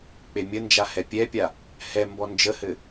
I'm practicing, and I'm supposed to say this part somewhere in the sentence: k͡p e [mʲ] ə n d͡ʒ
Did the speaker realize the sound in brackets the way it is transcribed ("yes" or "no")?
yes